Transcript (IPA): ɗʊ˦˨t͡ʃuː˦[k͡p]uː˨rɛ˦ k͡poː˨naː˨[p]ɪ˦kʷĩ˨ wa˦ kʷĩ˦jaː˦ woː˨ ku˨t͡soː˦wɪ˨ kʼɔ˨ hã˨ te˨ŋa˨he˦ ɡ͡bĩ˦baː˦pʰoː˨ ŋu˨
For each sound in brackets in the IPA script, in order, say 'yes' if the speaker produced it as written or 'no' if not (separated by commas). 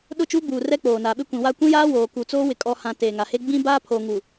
no, no